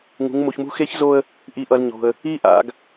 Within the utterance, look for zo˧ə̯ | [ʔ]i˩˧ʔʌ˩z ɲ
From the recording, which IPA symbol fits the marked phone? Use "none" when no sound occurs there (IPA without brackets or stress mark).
ʔ